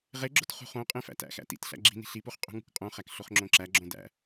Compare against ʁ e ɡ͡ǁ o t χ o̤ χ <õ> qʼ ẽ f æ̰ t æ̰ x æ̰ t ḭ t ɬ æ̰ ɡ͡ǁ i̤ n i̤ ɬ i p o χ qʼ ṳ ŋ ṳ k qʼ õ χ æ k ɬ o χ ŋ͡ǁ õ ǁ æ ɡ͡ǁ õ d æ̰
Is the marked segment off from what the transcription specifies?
no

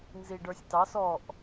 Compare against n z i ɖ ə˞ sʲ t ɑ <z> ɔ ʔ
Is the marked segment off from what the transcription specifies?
yes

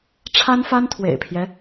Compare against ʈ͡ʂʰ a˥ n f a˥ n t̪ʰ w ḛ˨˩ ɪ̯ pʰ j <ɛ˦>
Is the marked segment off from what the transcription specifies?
no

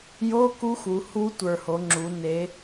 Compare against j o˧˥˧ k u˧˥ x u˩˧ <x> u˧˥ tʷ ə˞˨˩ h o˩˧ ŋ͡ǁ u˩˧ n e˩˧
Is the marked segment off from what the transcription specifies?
yes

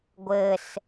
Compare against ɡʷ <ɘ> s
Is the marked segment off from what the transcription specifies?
no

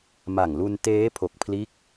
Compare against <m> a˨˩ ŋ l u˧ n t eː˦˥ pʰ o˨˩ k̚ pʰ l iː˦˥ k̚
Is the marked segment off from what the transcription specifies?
no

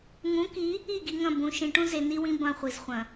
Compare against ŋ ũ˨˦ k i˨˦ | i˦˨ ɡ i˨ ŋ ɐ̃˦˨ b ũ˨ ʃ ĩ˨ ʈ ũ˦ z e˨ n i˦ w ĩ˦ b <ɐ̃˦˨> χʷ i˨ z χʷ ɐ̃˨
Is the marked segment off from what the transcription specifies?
no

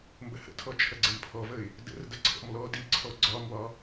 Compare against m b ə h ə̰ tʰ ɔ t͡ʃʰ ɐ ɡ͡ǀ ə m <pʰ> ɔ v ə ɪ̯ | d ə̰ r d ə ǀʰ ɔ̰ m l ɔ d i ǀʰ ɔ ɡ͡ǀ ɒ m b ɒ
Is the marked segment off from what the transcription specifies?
no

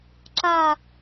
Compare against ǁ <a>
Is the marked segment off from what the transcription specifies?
no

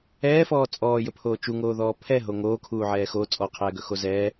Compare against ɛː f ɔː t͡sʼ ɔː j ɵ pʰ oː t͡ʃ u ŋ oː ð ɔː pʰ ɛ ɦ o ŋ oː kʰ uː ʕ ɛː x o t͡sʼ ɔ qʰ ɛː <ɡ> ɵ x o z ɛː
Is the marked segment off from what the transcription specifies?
no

